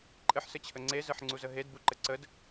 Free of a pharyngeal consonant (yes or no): no